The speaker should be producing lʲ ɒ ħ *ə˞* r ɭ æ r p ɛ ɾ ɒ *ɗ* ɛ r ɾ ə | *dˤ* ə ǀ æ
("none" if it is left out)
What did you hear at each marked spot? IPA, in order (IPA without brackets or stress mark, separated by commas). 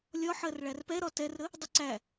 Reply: ɜ, t, dˤ